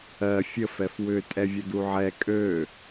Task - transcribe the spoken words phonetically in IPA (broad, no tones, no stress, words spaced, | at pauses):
ɜ fʲəfɛf wʏ tʼɛvʲəduʕɛ kʼø